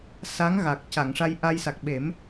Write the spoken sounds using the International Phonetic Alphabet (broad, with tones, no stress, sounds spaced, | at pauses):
s a˧˥ ŋ ɣ a˨˩ k̚ c a˨˩˨ ŋ ʂ a˧ j ʔ a˧ j s a˨˩ k̚ ɓ e˨˩˦ m